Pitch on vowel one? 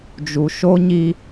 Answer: low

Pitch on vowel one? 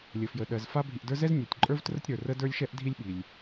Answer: low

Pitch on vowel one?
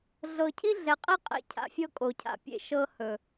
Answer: low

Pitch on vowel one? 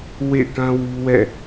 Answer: falling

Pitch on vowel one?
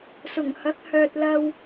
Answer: low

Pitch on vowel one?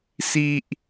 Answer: high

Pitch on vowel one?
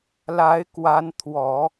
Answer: rising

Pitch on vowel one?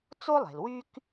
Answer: high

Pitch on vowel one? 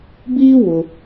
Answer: high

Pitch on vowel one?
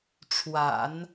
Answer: low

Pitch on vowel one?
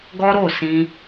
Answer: high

